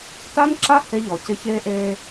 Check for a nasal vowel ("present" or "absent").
absent